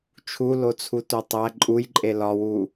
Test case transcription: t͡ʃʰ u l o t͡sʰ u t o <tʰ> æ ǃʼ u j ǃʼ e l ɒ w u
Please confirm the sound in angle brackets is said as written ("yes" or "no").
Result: no